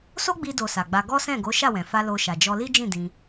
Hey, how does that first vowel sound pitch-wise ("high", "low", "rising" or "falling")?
high